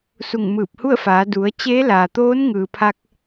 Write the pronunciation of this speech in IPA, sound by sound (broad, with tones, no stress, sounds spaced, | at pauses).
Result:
s u˧˩ ŋ m ɯː˧˩ p̚ h u˥˨ ə̯ f aː˩˧ d u˩˧ ə̯ t͡ɕ eː˧˥ l aː˩ t̪ oː˧˥ n ŋ ɯː˩ pʰ a˧ k̚